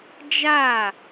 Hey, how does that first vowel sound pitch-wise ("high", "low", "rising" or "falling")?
falling